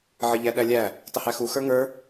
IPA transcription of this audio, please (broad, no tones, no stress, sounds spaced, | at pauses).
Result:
ʕ ə ʎ æ ɗ æ lʲ æ | tˤ ə h æ x u x ə˞ ŋ ə˞